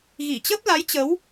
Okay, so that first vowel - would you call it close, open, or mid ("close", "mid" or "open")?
close